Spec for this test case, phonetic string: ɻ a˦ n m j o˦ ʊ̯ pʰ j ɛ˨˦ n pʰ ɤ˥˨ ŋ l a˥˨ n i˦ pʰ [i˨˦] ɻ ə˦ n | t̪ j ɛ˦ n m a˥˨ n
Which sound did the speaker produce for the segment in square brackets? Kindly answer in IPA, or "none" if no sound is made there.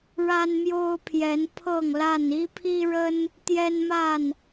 i˦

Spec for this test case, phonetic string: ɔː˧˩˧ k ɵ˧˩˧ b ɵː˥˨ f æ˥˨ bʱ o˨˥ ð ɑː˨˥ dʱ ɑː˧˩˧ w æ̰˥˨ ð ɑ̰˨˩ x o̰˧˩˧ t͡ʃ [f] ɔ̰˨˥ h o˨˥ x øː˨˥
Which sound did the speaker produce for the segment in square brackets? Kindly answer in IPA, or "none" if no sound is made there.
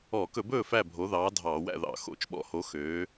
ɓ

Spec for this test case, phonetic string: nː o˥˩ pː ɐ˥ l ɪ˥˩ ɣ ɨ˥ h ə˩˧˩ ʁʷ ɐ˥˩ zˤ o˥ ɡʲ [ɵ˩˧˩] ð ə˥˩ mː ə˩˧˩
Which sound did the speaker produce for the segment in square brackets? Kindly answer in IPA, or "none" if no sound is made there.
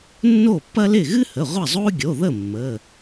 o˩˧˩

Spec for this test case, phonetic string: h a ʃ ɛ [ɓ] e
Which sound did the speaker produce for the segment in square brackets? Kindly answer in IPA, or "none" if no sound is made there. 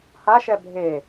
bʱ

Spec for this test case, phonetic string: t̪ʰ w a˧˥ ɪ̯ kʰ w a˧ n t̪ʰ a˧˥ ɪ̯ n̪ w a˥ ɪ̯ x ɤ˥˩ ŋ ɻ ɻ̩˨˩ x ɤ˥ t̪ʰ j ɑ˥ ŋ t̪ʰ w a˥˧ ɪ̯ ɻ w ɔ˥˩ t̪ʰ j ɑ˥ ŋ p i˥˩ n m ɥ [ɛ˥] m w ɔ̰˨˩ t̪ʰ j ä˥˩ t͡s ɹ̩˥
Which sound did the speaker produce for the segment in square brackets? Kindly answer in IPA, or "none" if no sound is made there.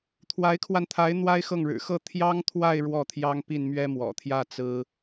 ɛ˥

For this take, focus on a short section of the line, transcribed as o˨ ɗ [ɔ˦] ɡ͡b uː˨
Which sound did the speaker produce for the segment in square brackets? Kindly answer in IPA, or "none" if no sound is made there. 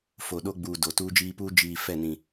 o˦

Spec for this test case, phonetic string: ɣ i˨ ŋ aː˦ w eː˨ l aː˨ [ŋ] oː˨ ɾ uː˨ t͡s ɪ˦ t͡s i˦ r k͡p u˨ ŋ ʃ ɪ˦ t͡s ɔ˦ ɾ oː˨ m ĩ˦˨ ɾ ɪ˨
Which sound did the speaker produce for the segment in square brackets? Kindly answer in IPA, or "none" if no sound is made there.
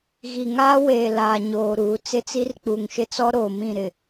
ɲ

